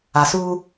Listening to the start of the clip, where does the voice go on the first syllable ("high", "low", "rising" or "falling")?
low